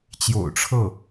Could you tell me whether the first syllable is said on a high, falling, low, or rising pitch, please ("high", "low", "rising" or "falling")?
low